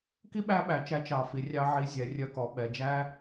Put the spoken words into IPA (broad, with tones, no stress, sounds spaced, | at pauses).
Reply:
k i˥ ɓ æ˥ ɓ æ˩ t͡ʃ æ˧ t͡ʃ ɑ˩ f i˩ rʲ ɑ˧ ʕ i˧ zʲ ɛ˩ rʲ œ˧ k ɔ˩ ɓ ɛ˩ d͡ʒ æ˥